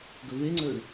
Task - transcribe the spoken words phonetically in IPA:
ɡ ɵ v e ŋ͡ǀ ɵ ɳ

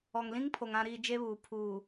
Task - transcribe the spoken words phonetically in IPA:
ɔ˨ ŋ l ĩ˦ ŋ pʰ o˨ ŋ ã˨ ɾ iː˨ d͡ʒ e˦ β uː˨ pʰ uː˨

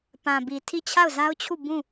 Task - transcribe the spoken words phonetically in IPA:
p ã˨ b i˨ tʰ i˦˨ t͡ɕʰ a˦˨ ʊ̯ z a˦ ʊ̯ t͡ɕʰ u˦˨ b ũ˦˨

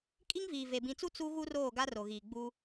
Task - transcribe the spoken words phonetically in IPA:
kʼ i˦ ŋ v iː˨ v e˨ b ĩ˨ t͡s u˦ t͡s u˦ ɣ u˦ r oː˦˨ ɡ a˦ r o˨ ɣ iː˨ ɡ͡b u˦

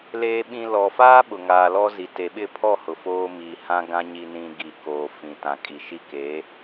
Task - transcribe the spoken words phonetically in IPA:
l eː˨ ɓ ĩ˨ l ɔ˨ f aː˦ ɓ ʊ˨ ŋ aː˨ l ɔ˦ z i˨ t e˨ ɓ ɪ˦˨ pʰ ɔ˦˨ h ʊ˨ f oː˦ m i˨ h ã˦ ɡ ã˦ ɲ i˨ n ĩ˨ ɡ i˨ k oː˨ f ĩ˨ t ã˨ kʼ i˨ ʃ i˦˨ k e˨˦

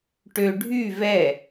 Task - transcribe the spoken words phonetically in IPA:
ʈ ø ɖʱ y v ɛ

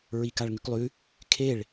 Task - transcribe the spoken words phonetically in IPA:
ɹ i k a ɭ ŋ ʉ k lˠ ʉ | kʰ e ɭ

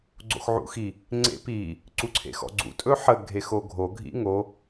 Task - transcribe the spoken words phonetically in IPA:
ɡ͡ǀ o̰ x ʕ ṵ x i | ŋ͡ǀ ḛ p i | ǀ u ǀʰ ḛ x ɔ̰ ɡ͡ǀ ṵ tʼ ɵ ħ ə ɡʱ e x o ɡʱ o ɡʱ ḭ ŋ o

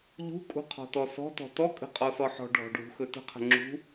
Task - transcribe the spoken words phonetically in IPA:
ʎ ṳ kʼ ṳ qʰ ɔ̤ t ɔ s ɔ̤ t ɔ̤ t ɔ kʼ ə̤ qʼ ɔ s ɔ ħ ɔ̤ ɖʱ ɔ̤ ɖʱ ṳ x ɵ t ə̤ qʰ ə̤ ŋ͡ǁ ṳ

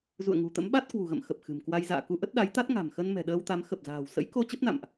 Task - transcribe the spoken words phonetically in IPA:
z ṵ˧˨ ə̯ ŋ ṳ˨˩ t̪ ə̰˧˥ m ɓ a˦˥ t̚ k w ṳ˨˩ ɣ ə̰˧˨ m x ə˨˩ p̚ x ɨ̤˨˩ m k w a˧ j z a̰ː˧˨ k u˧ ʔ ə˦˥ t̚ ɗ a˨˦ j t̪ a˦˥ t̚ ŋ a̤˨˩ m x ə˧ n m ɛ̤˨˩ ɗ əː˧ w t̪ a˨˦ m x ə˨˩ p̚ z a̤ː˨˩ w s ə̰˧˥ j k o˧ t͡ɕ ə˦˥ p̚ n a̰˧˨ m ʔ

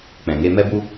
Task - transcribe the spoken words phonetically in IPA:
k͡p ɛ̃˨ ŋ e˧ m ɛ˦ b u˦

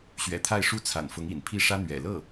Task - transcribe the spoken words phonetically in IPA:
ɕ ɥ ɛ̰˨˩ t̪ʰ a˥˧ ɪ̯ ʂ u˥˩ t͡sʰ a̰˨˩ n f ʊ˧˥ ŋ ḭ˨˩ n pʰ i˥˩ ʂ ä˥ n̪ ɥ ɛ̰˨˩ l ɤ˥˩

